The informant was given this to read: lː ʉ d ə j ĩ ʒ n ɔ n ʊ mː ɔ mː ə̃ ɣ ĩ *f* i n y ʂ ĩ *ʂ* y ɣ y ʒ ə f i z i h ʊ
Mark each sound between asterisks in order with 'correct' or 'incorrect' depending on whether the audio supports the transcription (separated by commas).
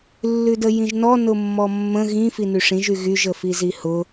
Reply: correct, incorrect